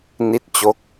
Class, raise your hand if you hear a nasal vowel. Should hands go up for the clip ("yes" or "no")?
no